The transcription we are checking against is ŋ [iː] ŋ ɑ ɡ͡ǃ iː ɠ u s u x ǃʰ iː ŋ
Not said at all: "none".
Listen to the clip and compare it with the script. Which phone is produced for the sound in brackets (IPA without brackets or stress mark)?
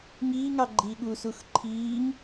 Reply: iː